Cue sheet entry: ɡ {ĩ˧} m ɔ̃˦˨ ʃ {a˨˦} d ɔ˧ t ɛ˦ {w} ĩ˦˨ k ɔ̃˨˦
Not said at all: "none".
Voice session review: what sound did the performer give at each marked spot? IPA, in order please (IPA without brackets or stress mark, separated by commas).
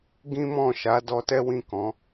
ĩ˦, a˨˦, w